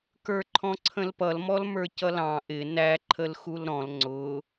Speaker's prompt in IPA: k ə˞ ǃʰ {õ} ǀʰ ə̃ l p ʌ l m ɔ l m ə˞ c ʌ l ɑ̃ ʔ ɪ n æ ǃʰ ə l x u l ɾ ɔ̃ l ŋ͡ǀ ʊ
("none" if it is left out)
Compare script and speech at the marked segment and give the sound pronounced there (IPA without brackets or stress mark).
ɔ̃